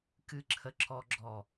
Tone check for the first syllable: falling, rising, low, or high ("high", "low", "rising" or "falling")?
low